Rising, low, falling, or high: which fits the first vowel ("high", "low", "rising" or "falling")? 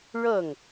falling